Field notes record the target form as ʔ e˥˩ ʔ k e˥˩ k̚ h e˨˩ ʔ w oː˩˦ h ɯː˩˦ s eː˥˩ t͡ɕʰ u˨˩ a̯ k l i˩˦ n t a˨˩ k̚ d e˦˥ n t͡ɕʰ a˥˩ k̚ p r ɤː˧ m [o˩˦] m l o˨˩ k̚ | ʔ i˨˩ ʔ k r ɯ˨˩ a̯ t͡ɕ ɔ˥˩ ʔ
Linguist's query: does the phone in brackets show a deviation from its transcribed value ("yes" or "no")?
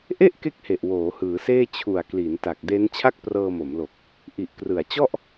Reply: no